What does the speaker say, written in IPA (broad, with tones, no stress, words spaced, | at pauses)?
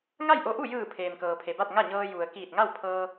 ŋa˥˨jʔo˧˥ʔu˥˨ jɯː˧˩ pʰeː˩mkɤː˩pʰe˩ba˥˨t̚ ŋa˥˨ɲɤː˧ ju˩ə̯ kiː˧˩t̚ŋa˥˨w pʰɤː˧